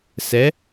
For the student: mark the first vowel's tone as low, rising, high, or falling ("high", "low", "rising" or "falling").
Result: rising